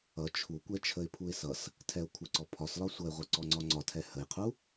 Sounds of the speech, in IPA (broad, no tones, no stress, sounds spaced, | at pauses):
ʌ t͡ʃʰ u kʷ ɛ t͡ʃʰ ə ɪ̯ pʰ u ɪ̯ s ʌ s | tʰ ɛ ʊ̯ kʷʰ ə ǀ ɔ pʰ ɒ s l ɒ sʷ ʌ ɪ̯ ʁʷ ʌ ǀ ɔ ŋ͡ǀ ɒ ŋ͡ǀ ɒ tʰ ɛ h ə j qʰ u